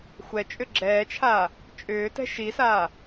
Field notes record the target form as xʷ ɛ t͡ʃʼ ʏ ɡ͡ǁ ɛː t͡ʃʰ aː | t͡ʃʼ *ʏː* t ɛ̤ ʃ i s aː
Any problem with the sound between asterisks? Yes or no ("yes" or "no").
no